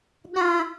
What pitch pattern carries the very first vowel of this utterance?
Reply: low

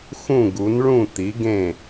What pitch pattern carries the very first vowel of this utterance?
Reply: falling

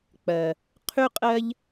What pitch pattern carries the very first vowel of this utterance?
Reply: low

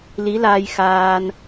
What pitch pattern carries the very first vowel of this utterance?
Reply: rising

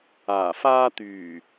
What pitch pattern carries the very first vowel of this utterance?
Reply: low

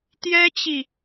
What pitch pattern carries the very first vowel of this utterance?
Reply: high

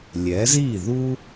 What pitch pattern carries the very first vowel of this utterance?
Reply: rising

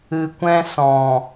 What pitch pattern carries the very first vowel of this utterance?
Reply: low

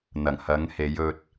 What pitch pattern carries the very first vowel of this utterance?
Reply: low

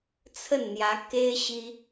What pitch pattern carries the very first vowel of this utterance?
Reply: falling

